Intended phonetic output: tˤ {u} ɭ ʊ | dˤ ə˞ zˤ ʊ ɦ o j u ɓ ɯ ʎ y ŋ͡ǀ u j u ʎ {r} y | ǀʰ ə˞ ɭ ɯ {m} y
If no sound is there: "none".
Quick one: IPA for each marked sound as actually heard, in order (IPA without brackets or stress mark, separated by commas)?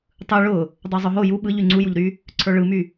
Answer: ɯ, ɾ, m